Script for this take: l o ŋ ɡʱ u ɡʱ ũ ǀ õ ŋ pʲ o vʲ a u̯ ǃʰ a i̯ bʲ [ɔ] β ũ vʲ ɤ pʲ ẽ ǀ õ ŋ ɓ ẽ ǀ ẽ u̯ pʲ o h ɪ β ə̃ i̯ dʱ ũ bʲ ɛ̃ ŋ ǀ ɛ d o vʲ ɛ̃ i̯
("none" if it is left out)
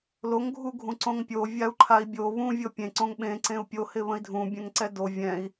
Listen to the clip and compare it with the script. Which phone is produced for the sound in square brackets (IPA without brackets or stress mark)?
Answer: o